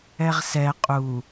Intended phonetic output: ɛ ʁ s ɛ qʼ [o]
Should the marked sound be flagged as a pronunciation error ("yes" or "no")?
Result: yes